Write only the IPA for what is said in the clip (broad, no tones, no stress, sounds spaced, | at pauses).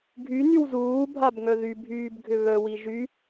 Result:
ɡʱ y n y w z uː bʱ a b ŋ œ ð y bʱ yː b ɡʱ ʏ β œ w i ʒ y